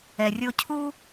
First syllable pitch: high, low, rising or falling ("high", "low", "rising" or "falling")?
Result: low